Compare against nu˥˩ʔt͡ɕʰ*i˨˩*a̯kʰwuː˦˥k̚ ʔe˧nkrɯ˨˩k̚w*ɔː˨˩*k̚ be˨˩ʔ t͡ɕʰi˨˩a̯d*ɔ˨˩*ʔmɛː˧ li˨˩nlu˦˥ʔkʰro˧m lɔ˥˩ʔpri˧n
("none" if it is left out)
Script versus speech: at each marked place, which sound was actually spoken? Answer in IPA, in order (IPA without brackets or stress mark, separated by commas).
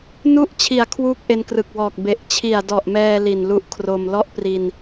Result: i˨˩, ɔː˨˩, ɔ˨˩